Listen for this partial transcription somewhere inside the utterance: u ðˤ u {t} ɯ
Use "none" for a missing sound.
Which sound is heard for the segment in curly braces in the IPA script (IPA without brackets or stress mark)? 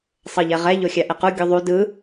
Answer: d